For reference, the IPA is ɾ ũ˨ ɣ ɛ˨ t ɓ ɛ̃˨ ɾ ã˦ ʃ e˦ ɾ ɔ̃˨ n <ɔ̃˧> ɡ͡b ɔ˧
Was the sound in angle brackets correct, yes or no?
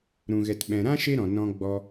yes